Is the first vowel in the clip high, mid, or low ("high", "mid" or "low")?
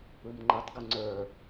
high